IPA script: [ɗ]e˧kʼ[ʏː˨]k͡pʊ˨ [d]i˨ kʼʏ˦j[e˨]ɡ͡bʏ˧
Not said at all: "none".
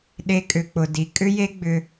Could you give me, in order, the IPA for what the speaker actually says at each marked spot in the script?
ɗ, ʏ˨, d, e˦

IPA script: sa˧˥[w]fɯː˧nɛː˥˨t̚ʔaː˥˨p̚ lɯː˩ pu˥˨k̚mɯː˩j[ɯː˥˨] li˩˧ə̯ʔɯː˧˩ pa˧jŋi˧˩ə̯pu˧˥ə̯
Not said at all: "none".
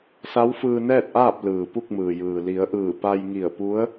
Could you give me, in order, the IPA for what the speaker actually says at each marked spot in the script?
w, ɯː˩

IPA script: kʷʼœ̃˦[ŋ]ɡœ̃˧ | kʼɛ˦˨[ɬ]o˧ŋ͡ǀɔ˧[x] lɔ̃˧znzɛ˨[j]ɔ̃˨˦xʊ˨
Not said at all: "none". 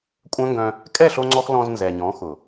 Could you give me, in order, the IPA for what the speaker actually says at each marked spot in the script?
ŋ, ɬ, x, ɲ

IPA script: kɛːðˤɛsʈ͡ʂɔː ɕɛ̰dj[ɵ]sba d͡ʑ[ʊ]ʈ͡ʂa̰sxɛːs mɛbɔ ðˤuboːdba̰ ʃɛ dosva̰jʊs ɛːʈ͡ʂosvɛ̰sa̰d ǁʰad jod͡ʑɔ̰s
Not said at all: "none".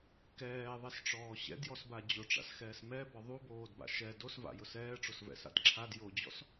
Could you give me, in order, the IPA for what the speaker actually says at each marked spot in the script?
ɔ, ʊ

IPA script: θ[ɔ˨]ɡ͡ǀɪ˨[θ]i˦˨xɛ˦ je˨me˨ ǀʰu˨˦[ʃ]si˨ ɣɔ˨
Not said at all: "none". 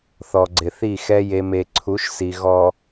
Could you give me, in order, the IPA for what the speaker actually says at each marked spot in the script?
ɔ˨, θ, ʃ

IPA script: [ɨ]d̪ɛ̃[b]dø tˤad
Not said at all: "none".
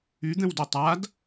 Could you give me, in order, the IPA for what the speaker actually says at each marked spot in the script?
y, w

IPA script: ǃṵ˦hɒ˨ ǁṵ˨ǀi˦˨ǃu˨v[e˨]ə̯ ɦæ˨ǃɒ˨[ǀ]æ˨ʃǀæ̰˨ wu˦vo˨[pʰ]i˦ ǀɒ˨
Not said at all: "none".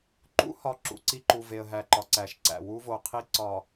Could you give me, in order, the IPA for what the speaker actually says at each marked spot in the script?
e˨, ǀ, qʰ

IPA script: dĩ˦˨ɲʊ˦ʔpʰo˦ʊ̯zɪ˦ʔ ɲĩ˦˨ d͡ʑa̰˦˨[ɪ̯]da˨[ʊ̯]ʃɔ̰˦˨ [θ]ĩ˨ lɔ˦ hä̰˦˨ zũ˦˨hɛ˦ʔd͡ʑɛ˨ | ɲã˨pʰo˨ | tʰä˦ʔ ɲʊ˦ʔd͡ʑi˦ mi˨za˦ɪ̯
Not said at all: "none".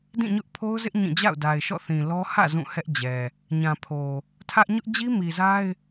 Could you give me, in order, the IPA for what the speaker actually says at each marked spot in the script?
ʊ̯, ɪ̯, θ

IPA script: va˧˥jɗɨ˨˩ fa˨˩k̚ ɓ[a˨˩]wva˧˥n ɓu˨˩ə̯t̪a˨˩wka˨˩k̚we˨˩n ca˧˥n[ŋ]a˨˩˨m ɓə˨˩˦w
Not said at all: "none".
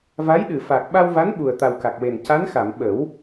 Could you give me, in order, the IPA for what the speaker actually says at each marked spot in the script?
a˧, x

